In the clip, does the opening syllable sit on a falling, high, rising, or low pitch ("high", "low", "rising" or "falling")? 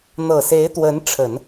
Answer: low